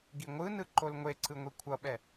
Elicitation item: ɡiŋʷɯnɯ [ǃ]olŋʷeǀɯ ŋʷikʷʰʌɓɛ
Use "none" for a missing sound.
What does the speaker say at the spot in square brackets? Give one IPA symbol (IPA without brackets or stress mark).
ǃ